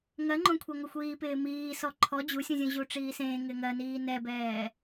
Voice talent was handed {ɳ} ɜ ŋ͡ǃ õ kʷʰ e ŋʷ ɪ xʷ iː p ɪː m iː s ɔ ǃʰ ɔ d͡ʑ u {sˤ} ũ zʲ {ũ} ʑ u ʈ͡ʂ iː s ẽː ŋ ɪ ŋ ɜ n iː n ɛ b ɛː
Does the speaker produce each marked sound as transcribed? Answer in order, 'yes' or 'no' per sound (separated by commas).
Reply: no, no, yes